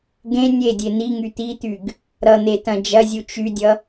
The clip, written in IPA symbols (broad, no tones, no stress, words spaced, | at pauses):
ɡẽ nʲedʲe n̪iŋy t̪it̪yɡ | ɾʌn̪etɐ̃ d͡ʒɐzʲu t͡ʃydʲʌ